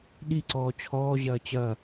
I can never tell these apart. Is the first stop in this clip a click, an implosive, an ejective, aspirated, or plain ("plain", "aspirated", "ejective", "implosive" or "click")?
implosive